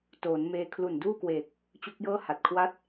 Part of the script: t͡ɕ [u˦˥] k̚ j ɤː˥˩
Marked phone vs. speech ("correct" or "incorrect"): correct